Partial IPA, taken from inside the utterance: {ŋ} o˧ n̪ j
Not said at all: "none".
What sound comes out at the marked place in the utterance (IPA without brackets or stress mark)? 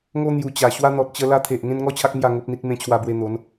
ŋ